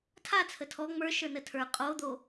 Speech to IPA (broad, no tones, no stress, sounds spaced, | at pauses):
tʰ a t͡sʰ ə tʰ ɔ ŋ͡m ə˞ ʃ ə˞ n ə tʰ ə˞ qʼ o d̪ o